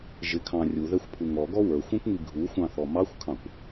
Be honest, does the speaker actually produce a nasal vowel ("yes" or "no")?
yes